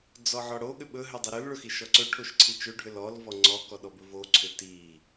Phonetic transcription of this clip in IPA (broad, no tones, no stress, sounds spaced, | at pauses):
d͡z ɔ ʕ ɔ ɽ o ɠ ʏ ɓ ɵ ɦ ʏ dˤ i ɾ ɵ l ɭ ɵ x i ʃ ɔ ǀ ɵ ʈʰ o ʃ ǀʰ i t͡ʃ ɵ ɖʱ ʏ l ɔ l v ɔ ŋ͡ǀ ɔ k ɔ ɗ ɔ b ɵ v o ǀʰ ʏ t i